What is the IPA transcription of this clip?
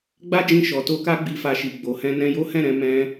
ɡ͡ba˦d͡ʒĩ˧ ʃɔ˨to˧ka˦ ɡ͡bi˧fa˧ʃi˨ ɡ͡bo˨hɛ̃˧ nɛ̃˧jo˦hɛ̃˦˨ɾɛ̃˨˦ mɛ̃˦

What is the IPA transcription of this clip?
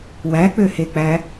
wæk͡pøhek͡pæ

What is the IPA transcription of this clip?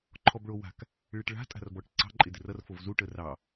ǃʰɔbɭowa̤k | ɭɪʈɭa̤ tʼa̤rbɔʈǀɑ̤ ǃʼɪdɪrʌr fovzu ʈərɑ

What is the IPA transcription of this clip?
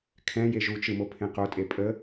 kʰɛ̃ jeʒut͡ʃɯmo pʰẽqotʼe pʼə

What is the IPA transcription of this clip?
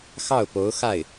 xɑ˥˩ʊ̯po˧˥ʊ̯ xa˥˩ɪ̯

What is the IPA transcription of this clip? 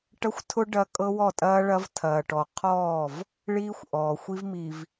ʈɐ˦xʷtʰʊ˦ ɖɐ˦ kʼɤ˦wɔ˦˨tʼɐː˦ɭɐ˦v tʰɐː˨ʈɔ˨ qʰɔː˦˨v | ɭiː˦xʷʔɔː˨ xʷi˦vmi˨v

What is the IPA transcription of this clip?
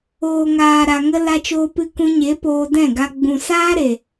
oː˨ŋaː˨ ɾa˨ŋə˧ la˧t͡ʃoː˧pɨ˧ kũ˧ɲe˨˦ poː˧dɛ̃˦˨ɡa˧ ɡ͡bũ˨ saː˦ɾe˨

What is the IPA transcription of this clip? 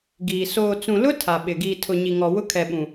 ɡiː˨ soː˨t͡sũ˨lʊ˦ tʰa˨ɓɪ˨ ɡiː˨tʰʊ˨ ɲi˨ŋɔ˨ wʊ˦kʰɛ˨ɓũ˨

